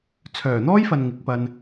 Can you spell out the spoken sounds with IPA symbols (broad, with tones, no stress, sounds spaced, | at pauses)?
t͡sʰ œː˨˩ n̪ ɔː˥ j f ɐ˨ n ŋ ɪ˨˥ k̚ p ɐ˧ n